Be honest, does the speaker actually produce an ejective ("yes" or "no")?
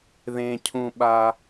no